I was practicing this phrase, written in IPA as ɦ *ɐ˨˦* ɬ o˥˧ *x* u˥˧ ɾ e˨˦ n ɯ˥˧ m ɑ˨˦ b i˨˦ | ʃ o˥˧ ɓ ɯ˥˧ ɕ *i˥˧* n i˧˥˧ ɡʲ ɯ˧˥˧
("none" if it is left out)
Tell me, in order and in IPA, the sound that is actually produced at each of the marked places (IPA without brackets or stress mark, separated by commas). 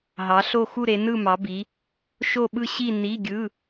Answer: ɑ˨˦, x, i˥˧